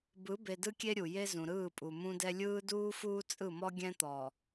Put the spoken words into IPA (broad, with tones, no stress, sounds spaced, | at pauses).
b ɯ˨˦ b e˨ d ɯ˦ kʲ e˦ ɾʲ u˨ j e˦ z ũ˨ ɾ ɯː˦˨ pʼ u˨ m ũ˦ d ɛ˦ lʲ ɯː˦ d uː˦ f uː˦ t͡sʼ ɯ˦˨ m ɔ˦ ɡʲ ɛ̃˦ t̪ ɔ˨